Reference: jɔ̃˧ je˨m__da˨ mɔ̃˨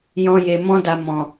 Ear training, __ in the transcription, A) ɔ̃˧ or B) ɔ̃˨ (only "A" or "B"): A